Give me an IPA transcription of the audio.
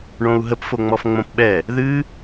ɳõu̯ɦəp foŋ͡mɔfŋ͡mõpɓɛ | ðɨ

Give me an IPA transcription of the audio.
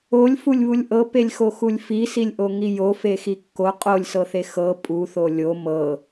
olʲfulʲβulʲ ʔɤpelʲxoxulʲ fisilʲʔoŋi jofexi kːo qʼolʲsɤθe xɤ pʼuθo lʲo mɤ

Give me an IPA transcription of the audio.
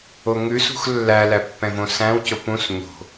oŋʉsṳx lːælæ pːɛ̃võsæ̃wco pũs ɲo̤

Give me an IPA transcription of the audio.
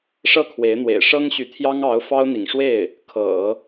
ʂɤ˥˩kʰwe˧˥ɪ̯n̪wḛ˨˩ɪ̯ ʂɤ˥ŋɕy˧˥ t̪ʰjɑ˥ŋɑ˧˥ʊ̯ fɑ˥ʊ̯n̪ḭ˨˩ŋʂwe˥˩ɪ̯ | kʰɤ̰˨˩˦

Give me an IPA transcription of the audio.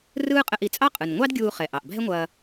rɯː˥ qʼə˧ʔi˩t͡sʼɑ˥qʼɯ˩n ŋʷɑ˥dɡʲuː˧χɛ˩ʔɑ˩ʔ bʱɛ˥ŋʷɐː˧

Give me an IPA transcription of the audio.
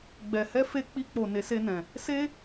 ɡ͡bɛ˨hɛ˧ fe˦ k͡pi˧k͡po˨ ne˨˦se˧nɛ̃˨ | se˦

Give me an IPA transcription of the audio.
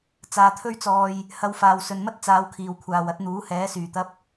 t͡saː˨t̪ʰɵ˥ɥt͡sɔː˧j | hɐ˨˧wfaː˨w sɵ˨nmɐ˥t̚ t͡saː˨˧wkʰiː˨wkʷʰaː˨w ɐ˨˥t̚n̪uː˨˥hɛː˨˥ syː˨˩t̪ɐ˧p̚

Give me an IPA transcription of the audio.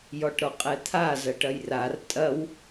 jɔʈɾɔqʼɛt̪ʰa zɐʈɐjrar tʼɐw

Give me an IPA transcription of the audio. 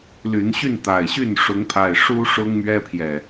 ly˨˦nɕy˥˨nt̪a˨˩ɪ̯ɕy˥˨n ʂʊ˨˦ŋpʰa˨˩ɪ̯ ʂu˦ ʂʊ˦ŋmɥɛ˦pʰjɛ˨

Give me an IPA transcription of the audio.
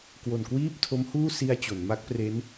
kwo˨˩nkwiː˥˩p̚tʰo˦˥mhuː˥˩ si˧a̯ t͡ɕo˩˦nma˦˥k̚pre˦˥n

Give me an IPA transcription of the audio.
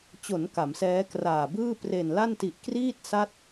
t͡ɕo˩˦n ka˩˦msɛː˦˥kraː˨˩bɯː˥˩ pre˨˩nla˥˩nti˨˩ʔ kriː˥˩t̚ sa˥˩t̚

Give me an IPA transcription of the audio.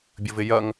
bʲəvɪjɐŋ

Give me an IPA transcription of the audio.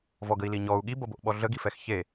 vɔɡəi̯li ɲɔu̯ ɠibʌboʔɓɔ ɮəɡifɛx çe

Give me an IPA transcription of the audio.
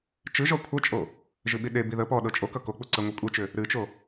t͡ʃɨʒɔ kʷʰʌt͡ʃʼo | ʒɨɓiɗebi ðə pɔ ɗɤt͡ʃʼokʌ kok͡pu ǀəŋʷɤ kʷʼet͡ʃʏ | ɾɨt͡ʃo

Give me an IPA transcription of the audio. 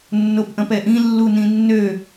nːopʔɐ̃pɛʔĩ lːunĩnːø

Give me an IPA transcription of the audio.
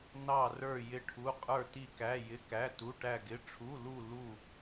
nɑ˥˧rə˞˥˧ jɪ˥˧ʈʰu˧˥˧ qʼə˞˥˧ti˥˧kæ˧˥˧ jɪ˧˥˧kæ˧˥˧tu˧˥˧ ʈæ˥˧ɡɪ˧˥˧ ʈ͡ʂʰu˧˥˧lu˥˧ lu˥˧

